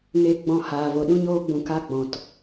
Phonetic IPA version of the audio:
ŋ e˧ ɡ͡b ɔ̃˧ h aː˨ v o˨ ɗ ũ˦ ɲ oː˦ ɡ͡b ũ˧ k a˦ ɡ͡b ɔ̃˨ t

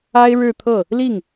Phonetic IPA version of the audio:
a˥ ɪ̯ ɻ ɻ̩˥˧ t̪ʰ ɤ˥˩ | l i˥˩ ŋ

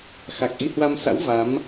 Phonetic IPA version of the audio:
x a˨˩ k̚ ʔ i˧ h w a˧ m s a̰˧˥ w v a˨˦ m

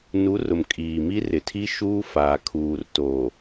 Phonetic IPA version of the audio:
n u˨˦ r ʊ˨ m kʼ iː˨ m i˦ r ɪ˨ tʰ i˦ ʃ uː˦ f aː˨ kʰ uː˨ r t oː˨

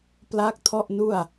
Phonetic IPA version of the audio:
p l a˦˥ k̚ tʰ ɔ˥˩ ʔ n u˥˩ a̯

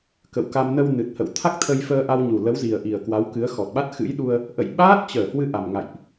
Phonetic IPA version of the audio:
k ə̰˧˨ w k a˧ m n ə˧ w n ɨ˨˩ t̚ h ə̰˧˨ w t̪ʰ a˦˥ k̚ t̪ʰ ə˧ j f əː˧ ʔ a˧ w ɲ u˨˩ l ə˨˦ w z i˨˩ ə̯ ʔ i˨˩ ə̯ k w a˨˦ w k ɨ˨˦ ə̯ x ɔ˨˩ t̚ ɓ a˦˥ t̚ x ɨ̰˧˥ j ɗ u˧ ə̯ | ʔ ə̰˧˨ j ɓ aː˦˥ t̚ t͡ɕ əː˧˩ h w ɨ˧ ʔ a˨˩ m ŋ a̰˧˨ j ʔ

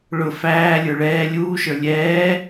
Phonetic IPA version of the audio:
ɭ ʊ f æː lʲ ə˞ ɭ ɛː lʲ uː ʃ ə˞ lʲ ɛː

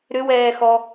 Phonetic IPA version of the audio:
ɾ ʏ w ɛː x ɔ

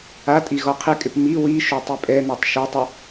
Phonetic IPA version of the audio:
a tʼ i ɣ ɔ qʰ ɪ kʼ ɪ p m i w i ʃ o tˤ i pʼ ɛ n a tˤ ʃ o tˤ ɛ

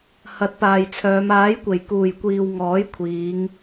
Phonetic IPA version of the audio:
h ɐ˨˥ t̚ p aː˨ j t͡sʰ œː˨˧ m aː˨˥ j kʷ e˨˩ j k uː˨˩ j kʷ iː˨ w ŋ ɔː˨˥ j kʷʰ iː˨˧ ŋ

